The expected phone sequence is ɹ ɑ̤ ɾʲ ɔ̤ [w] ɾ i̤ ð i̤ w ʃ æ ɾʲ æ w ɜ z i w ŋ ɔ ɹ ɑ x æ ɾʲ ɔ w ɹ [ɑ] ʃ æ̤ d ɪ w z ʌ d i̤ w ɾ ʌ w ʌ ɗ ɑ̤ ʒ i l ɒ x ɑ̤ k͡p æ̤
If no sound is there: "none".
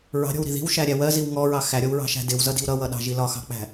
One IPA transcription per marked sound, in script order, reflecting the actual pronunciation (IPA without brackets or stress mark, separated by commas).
w, ɑ̤